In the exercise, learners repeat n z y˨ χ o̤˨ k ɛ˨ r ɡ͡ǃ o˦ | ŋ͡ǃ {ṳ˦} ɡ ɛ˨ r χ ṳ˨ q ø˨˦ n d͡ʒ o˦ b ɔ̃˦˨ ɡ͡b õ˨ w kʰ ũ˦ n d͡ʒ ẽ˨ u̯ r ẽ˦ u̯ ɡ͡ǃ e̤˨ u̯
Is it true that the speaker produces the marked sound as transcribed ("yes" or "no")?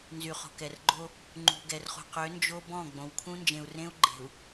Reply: no